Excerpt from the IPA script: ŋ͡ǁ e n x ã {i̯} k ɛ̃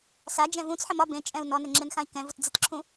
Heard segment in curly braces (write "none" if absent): i̯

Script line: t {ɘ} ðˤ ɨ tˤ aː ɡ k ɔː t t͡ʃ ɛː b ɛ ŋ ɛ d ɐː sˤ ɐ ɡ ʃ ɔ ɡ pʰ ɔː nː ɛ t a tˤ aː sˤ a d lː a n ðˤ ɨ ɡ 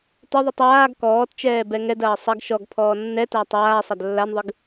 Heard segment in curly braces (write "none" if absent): ɘ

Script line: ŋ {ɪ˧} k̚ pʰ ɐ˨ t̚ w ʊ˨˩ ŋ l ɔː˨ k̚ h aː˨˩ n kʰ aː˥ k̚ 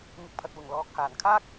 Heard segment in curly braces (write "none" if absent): ɪ˧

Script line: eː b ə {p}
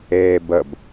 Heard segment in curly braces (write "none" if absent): b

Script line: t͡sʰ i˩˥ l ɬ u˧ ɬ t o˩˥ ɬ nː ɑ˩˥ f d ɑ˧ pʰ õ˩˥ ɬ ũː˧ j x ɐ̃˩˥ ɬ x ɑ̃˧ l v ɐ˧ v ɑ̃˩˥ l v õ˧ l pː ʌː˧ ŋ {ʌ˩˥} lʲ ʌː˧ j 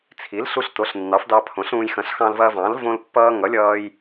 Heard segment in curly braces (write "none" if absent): ʌ˩˥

